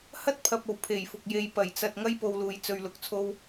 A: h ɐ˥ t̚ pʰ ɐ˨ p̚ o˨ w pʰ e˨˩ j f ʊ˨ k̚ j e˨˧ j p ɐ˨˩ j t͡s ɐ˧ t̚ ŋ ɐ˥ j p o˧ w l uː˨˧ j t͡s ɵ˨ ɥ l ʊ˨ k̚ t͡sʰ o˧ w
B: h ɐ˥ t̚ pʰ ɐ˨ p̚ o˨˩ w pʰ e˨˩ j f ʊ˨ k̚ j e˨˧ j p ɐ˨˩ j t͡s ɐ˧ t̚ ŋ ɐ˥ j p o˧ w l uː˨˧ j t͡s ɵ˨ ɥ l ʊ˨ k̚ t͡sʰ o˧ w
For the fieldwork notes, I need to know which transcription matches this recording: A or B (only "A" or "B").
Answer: B